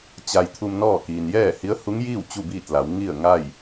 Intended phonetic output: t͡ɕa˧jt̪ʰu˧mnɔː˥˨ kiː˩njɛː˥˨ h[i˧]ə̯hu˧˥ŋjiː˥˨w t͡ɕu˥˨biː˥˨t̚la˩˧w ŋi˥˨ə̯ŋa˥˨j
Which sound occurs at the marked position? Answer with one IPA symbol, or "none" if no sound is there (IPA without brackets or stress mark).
i˧˥